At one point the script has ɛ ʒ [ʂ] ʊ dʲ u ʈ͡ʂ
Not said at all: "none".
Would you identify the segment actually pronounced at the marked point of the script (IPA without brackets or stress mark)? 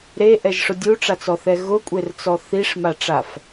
ʂ